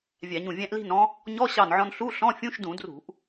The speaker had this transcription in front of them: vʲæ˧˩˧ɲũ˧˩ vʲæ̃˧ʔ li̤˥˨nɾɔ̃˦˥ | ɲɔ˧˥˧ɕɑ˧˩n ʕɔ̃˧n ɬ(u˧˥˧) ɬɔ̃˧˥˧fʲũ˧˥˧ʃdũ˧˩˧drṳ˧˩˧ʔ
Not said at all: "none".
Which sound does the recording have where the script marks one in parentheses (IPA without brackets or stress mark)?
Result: u˧˥˧